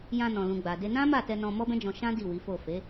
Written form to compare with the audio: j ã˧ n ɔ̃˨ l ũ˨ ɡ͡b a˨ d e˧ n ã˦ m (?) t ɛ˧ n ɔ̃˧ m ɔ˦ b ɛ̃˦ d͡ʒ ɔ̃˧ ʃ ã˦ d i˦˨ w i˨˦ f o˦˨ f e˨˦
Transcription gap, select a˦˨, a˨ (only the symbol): a˦˨